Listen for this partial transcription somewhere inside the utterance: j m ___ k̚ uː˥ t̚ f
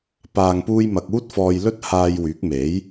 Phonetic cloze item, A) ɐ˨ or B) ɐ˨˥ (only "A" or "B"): A